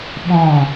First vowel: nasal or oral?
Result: nasal